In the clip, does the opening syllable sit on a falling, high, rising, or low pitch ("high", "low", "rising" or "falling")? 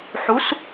rising